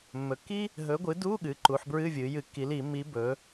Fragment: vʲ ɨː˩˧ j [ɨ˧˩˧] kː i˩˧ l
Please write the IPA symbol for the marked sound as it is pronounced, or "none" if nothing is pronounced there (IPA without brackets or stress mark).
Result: ɨ˧˩˧